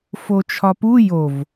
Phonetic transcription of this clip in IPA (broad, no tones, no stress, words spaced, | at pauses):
fot͡ʃʰɒpu jov